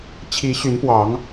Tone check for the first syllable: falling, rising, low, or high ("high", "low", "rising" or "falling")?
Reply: rising